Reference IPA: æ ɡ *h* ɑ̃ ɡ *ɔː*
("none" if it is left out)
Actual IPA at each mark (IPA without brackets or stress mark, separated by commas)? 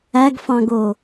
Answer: f, oː